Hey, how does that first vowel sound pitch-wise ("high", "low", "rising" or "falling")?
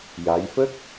rising